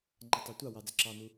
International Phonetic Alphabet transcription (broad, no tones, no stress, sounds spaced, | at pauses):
ŋ͡ǃ a tˤ a tʷ ɑ w ɑ d͡z ə ǁ ɑ n u